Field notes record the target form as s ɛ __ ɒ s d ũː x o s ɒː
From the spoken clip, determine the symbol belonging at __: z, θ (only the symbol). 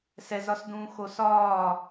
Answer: z